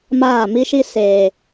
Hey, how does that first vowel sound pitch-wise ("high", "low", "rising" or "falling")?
falling